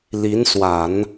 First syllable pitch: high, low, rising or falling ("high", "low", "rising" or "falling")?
rising